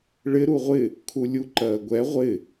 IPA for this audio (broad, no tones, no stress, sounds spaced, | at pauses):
ɭ ɪ ɾ u ʁʷ ɪ | kʰ u lʲ u ǃ ɜː ɡʷ ɛ ʁʷ ɪ